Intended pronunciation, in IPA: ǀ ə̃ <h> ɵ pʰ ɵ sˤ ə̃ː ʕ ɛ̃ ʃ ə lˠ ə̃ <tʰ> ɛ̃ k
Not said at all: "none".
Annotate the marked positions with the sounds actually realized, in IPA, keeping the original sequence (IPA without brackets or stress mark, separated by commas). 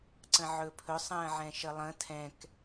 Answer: ʕ, tʰ